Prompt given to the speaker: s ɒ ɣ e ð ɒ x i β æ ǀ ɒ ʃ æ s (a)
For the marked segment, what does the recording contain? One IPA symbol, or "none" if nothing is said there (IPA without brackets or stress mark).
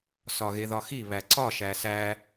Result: æ